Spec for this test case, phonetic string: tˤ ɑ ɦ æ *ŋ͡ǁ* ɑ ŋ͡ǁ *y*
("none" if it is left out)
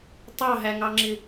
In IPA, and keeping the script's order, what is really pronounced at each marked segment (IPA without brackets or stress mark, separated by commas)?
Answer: ŋ, ɪ